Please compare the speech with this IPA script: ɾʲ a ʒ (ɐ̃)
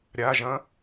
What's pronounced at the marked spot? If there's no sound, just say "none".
ɐ̃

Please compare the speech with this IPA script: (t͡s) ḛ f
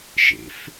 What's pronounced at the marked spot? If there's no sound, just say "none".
ʃ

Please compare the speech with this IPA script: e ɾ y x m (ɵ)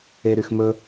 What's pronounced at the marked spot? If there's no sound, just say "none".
ɵ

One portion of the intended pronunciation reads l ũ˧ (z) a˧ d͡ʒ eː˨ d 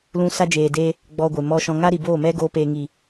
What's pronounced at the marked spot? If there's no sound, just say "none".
s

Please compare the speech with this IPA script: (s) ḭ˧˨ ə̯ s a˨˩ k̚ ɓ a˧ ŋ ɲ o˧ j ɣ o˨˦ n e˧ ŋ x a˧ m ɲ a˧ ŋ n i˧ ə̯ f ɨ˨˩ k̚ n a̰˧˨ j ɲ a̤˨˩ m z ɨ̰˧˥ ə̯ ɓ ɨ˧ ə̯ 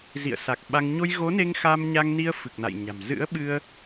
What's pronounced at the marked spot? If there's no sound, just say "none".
z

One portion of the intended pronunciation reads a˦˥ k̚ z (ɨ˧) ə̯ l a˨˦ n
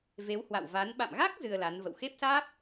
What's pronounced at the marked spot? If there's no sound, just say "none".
ɨ˧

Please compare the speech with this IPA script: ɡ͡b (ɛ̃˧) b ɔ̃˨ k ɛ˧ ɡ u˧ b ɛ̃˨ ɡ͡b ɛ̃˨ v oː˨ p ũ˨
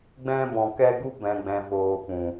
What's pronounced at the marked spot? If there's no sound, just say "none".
ɛ̃˧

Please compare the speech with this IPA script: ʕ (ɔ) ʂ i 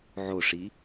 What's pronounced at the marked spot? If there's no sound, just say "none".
o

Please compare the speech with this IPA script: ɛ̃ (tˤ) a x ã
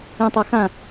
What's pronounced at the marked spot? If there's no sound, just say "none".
tˤ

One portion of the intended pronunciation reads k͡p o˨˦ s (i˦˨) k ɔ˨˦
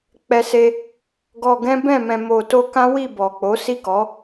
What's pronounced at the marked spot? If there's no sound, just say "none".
i˦˨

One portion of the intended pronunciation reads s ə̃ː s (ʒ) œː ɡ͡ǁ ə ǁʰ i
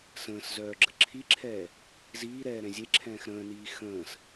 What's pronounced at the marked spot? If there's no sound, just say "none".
z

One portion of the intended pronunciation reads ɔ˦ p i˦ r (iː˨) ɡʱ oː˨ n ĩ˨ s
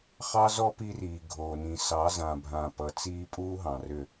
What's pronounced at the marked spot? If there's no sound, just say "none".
iː˨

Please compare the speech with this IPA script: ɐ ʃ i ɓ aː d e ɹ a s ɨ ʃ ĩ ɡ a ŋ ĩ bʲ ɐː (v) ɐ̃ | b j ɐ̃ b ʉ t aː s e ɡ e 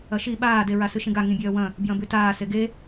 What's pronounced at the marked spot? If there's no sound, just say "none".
w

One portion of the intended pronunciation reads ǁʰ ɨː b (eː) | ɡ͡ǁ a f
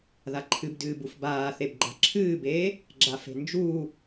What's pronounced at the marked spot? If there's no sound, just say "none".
eː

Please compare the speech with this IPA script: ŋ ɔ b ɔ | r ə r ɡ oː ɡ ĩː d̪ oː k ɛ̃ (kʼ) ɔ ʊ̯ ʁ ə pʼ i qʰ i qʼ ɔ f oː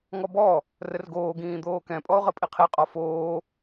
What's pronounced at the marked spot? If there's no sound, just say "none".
pʼ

